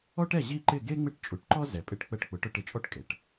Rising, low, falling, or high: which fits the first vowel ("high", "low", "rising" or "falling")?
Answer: high